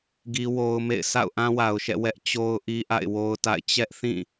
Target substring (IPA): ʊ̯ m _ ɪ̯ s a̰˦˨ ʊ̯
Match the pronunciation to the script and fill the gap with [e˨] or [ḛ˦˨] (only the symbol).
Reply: ḛ˦˨